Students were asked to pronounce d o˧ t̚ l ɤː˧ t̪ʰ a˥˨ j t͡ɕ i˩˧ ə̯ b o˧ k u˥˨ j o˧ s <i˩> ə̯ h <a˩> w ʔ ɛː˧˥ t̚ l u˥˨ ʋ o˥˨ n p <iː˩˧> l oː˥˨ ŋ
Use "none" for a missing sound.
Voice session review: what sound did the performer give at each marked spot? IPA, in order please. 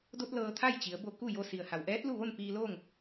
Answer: i˩, a˩, iː˧

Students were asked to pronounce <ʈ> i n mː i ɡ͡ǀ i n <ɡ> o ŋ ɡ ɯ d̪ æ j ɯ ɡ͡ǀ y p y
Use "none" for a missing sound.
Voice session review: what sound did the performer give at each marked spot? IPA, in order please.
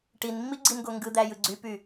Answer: ʈ, ɡ

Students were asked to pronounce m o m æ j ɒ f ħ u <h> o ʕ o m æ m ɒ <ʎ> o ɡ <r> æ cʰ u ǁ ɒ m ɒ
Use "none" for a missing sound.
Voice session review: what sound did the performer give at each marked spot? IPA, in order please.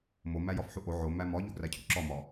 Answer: ʔ, ʎ, r

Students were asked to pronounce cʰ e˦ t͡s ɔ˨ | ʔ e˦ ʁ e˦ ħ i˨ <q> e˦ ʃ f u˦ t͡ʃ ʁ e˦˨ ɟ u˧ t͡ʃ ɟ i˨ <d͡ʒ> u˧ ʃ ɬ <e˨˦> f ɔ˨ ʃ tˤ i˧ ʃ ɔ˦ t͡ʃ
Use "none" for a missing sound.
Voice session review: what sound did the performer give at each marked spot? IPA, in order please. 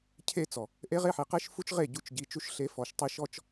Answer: q, t͡ʃ, e˨˦

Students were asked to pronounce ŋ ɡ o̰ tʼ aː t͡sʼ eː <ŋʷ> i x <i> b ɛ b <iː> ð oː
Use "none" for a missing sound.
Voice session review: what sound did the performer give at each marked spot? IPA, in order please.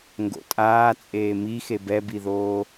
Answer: m, e, i

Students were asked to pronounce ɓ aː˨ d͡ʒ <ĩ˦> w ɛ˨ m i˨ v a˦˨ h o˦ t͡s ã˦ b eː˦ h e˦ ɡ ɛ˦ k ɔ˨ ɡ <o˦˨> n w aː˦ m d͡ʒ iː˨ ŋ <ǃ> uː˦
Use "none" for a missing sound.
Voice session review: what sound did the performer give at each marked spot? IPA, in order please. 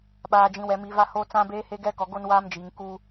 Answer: ĩ˨, o˦, k

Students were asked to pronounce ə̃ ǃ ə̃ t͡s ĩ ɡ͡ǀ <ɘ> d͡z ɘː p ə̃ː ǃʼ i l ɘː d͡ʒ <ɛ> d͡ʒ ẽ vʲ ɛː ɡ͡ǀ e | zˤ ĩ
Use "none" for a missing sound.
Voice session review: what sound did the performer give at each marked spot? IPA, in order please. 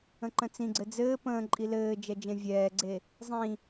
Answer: ɘ, ɛ

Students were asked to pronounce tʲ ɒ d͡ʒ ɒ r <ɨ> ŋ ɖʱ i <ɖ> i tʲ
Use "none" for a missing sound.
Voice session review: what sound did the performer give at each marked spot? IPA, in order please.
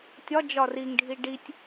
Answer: i, ɖ

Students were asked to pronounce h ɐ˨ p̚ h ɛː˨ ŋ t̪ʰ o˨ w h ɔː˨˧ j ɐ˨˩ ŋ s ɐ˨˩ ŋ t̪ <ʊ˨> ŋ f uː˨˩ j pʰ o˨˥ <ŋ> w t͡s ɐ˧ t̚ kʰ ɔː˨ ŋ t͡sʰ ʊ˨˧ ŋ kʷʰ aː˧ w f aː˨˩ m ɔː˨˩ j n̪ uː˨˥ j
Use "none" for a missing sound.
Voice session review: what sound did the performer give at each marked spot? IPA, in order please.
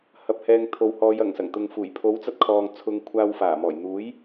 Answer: ʊ˨, none

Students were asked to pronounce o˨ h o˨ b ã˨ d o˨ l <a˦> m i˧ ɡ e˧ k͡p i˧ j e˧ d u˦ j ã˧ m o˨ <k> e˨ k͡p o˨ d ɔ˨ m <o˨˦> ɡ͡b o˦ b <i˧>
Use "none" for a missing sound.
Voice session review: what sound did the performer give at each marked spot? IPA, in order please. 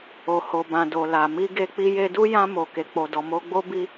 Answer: a˨, k, o˧, i˧

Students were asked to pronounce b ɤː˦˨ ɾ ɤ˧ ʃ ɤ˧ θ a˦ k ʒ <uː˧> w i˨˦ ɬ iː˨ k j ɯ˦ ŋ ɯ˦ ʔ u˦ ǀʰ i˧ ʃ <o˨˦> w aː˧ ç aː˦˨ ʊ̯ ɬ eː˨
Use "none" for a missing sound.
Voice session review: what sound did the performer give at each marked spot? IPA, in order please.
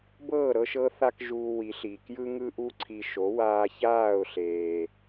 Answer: uː˧, o˨˦

